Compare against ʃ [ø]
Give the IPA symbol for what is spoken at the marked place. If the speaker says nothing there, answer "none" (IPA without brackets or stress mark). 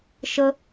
ə